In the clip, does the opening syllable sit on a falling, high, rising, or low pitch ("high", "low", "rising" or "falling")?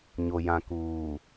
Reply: low